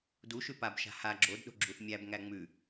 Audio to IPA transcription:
duʃʉ pabʃa̤ ha ɡ͡ǁodɗo̤ɡ͡ǁuθ mʲæbŋæ ŋ͡mʉ

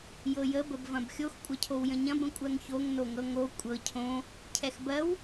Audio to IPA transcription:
jɤjə bəbvɐ̃bxʲox kʷʼɐcʰowjə̃ɲɐ̃b ə̃kʷʼɜŋçoŋ noŋɤŋo kʷʼɤ cʰõ | cʰɛxbɜw

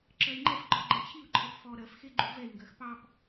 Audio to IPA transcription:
ǁɜi̯ŋ͡ǃɛfɡ͡ǃɔ ɡ͡ǃɛt͡ɕʰiu̯ǃʰɜp fɔ ɾɜfxe ɡ͡ǃuvɛi̯ŋɡɜx pɑp

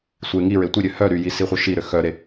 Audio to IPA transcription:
sʷe ŋi ɹetʷiɾʲø hœ ɾyji siχʷœʃiɾø xœɾe

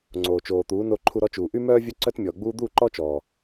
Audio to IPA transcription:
ŋ͡ǀoː˨t͡ʃoː˨t̪uː˨˦ no˧ǃʰu˧ɾɔ˧t͡ʃuː˨ ʔy˦mœː˦ vʲœ˦ǀœ˦tmʲɔː˨ɡ͡buː˦ d̪u˦˨ǃɔ˦t͡ʃɔ˨

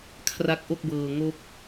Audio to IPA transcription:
kʰra˦˥k̚ʔo˥˩k̚bɤː˧ ŋo˦˥k̚

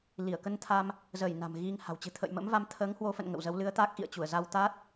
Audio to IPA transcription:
li˧˩ə̯kə˧nt̪ʰa˧m | zəː˧˩j na̤˨˩mɣi˧ŋha̤˨˩w t͡ɕɨ̤˨˩t̪ʰə̰ː˧˨jmə̰˧˥mva˧m t̪ʰəː˨˦ŋhwo˨˦fə̰˧˨n ŋə̰˧˨wzə˨˦wlɨ˨˦ə̯t̪a˦˥k̚ ʔḭ˧˨ə̯ t͡ɕu˧˩ə̯za˧w t̪a˦˥t̚

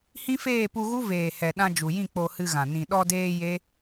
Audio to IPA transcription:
hĩ˦feː˦˨pu˧ɣu˦ veː˨hɛ˨ ɗã˧d͡ʒu˨jĩ˦˨ k͡po˧hɨ˧ɣã˨ nĩ˨ɗɔ˧deː˧ je˦

